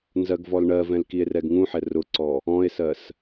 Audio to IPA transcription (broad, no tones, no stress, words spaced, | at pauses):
nzɜɡvɔlɳɜvɛ̃l kie̯rɛɡŋũħɛ rʊǀɔ | ɔ̃e̯sɜs